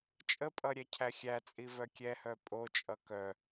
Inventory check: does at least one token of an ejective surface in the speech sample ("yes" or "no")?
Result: yes